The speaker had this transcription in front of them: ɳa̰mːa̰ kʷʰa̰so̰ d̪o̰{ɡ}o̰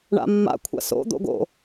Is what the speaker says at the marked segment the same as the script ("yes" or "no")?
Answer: yes